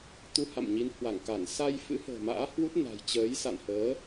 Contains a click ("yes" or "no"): no